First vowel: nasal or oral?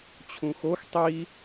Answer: nasal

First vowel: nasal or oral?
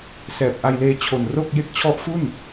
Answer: oral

